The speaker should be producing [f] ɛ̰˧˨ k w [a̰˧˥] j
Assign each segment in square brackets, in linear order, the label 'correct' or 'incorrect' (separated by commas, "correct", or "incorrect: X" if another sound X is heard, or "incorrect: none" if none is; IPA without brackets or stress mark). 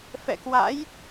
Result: correct, correct